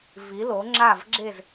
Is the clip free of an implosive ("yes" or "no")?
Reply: yes